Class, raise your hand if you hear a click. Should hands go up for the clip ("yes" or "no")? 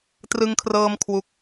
no